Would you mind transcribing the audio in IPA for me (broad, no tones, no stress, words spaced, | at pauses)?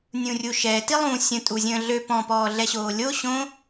nʲũrʲuʃɛ tilˠũ sʲə̃ tʼuzʲə̃ːɮø pɔ̃pɔːɮɛɕoː lʲo ɕõ